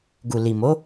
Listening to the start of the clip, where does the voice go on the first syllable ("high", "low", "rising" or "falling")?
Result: low